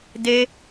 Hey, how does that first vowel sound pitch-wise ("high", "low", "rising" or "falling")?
high